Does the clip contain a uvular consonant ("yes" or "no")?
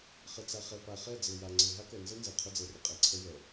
yes